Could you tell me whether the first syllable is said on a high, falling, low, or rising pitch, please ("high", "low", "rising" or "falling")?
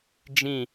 falling